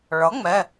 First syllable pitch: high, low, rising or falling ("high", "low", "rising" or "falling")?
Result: rising